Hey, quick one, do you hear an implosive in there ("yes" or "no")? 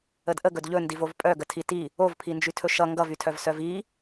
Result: no